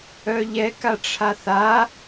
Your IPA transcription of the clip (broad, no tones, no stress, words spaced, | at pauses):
œʎɛ kaʈ͡ʂʰaθa